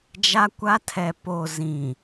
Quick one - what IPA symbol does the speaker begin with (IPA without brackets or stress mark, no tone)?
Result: d͡ʒ